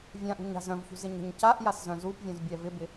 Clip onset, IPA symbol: vʲ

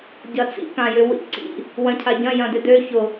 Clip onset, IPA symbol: ɟ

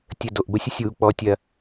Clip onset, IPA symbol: tʲ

